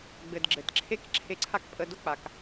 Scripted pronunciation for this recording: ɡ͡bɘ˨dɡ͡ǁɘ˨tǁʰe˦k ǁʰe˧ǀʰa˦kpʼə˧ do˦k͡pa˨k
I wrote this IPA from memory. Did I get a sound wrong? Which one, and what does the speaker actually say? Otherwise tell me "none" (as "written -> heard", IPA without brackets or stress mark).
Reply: none